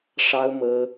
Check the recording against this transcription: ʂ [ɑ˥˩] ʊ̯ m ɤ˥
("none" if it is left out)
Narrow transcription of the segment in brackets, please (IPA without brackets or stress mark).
ɑ˥